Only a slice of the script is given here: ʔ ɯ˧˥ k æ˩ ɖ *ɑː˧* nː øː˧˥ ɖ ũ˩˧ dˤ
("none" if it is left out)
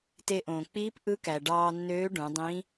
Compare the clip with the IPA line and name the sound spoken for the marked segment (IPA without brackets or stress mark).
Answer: ɑː˧